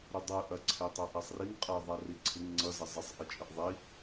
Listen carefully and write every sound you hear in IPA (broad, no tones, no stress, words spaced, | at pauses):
ɾudˤɯ ʔɐ ǀʰetˤaʔasˤriŋ qʼɐ ðˤariǀʰɪŋ ŋ͡ǀʌ zɐzˤesˤ ʔɪt͡ʃʼɪʔðˤi